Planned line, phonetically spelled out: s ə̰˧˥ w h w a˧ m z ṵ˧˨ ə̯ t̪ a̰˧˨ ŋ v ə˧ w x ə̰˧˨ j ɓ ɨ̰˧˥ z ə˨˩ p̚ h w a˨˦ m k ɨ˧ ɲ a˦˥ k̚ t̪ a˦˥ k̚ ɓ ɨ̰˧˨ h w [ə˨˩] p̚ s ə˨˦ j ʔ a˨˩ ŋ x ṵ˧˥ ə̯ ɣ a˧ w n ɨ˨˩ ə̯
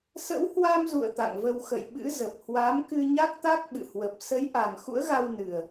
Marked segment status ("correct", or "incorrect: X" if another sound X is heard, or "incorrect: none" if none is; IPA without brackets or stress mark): correct